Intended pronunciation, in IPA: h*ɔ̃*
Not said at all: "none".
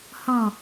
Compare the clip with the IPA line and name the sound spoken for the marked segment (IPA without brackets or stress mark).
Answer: ɔ̃